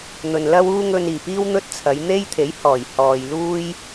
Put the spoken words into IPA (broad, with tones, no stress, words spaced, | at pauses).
n̪ɵ˨nlɐ˥wuː˥ ŋɵ˧niː˨˩piː˥w n̪ɵ˥t̚t͡sʰɐ˨˧j n̪e˥jt̪ʰe˨˥j hɔː˨˩j hɔː˨j luː˥j